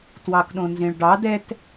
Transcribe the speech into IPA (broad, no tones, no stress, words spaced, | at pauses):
twɑkɗõnzẽɭɖɑ dɛt